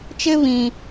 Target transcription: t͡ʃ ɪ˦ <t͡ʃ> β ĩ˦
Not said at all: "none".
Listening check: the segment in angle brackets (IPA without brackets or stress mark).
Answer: none